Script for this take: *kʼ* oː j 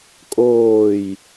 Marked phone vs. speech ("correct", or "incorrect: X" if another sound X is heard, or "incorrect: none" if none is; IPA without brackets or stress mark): correct